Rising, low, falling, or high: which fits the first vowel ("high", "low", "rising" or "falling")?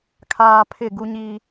low